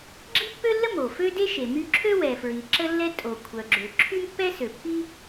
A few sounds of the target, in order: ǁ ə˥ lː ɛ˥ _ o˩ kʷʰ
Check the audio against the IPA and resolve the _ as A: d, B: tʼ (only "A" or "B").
B